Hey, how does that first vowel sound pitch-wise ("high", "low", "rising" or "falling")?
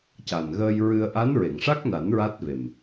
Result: low